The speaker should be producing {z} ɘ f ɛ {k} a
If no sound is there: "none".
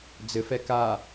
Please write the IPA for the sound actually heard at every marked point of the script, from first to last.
d͡z, k

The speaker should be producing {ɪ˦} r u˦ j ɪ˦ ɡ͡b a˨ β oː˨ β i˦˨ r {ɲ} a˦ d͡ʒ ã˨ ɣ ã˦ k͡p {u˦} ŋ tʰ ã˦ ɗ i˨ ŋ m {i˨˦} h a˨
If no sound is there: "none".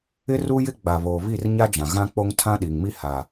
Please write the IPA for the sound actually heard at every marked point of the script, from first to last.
ɪ˦, ɲ, o˦, i˦

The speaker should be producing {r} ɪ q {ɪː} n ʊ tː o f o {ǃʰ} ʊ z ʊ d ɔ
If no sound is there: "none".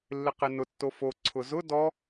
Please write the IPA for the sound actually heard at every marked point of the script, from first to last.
lː, ɪ, ǀʰ

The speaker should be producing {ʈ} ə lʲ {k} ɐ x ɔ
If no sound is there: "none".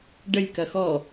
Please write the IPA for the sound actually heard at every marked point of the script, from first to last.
ɖ, k

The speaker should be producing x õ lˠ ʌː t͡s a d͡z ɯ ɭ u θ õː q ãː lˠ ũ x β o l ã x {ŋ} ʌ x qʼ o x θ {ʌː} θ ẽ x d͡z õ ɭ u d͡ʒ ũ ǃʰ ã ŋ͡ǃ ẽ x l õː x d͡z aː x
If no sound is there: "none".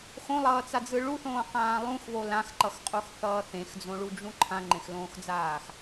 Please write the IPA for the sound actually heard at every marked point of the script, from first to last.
ǃ, ʌː

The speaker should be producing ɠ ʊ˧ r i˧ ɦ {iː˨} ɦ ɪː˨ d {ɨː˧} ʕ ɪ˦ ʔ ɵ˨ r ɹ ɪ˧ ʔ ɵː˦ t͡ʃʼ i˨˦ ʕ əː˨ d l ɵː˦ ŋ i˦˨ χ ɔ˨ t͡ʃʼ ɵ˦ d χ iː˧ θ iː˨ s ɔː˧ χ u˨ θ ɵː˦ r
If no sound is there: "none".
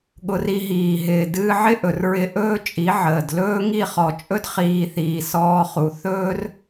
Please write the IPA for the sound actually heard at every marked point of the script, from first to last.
iː˨, ɨː˧

